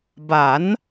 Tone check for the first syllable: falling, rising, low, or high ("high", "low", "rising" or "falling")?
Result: rising